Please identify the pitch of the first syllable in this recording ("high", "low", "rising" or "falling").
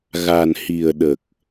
low